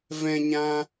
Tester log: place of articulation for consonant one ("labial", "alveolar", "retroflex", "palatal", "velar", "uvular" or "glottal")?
labial